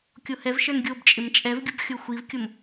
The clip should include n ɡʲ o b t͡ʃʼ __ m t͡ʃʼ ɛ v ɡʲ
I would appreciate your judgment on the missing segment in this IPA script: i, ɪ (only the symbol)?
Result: ɪ